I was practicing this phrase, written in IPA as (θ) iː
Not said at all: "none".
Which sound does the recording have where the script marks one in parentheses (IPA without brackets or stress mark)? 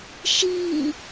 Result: ʃ